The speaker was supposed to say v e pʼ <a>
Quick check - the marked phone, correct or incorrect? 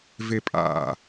incorrect